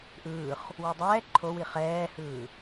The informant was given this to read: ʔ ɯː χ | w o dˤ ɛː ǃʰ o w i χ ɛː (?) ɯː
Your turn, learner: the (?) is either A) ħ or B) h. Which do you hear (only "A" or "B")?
B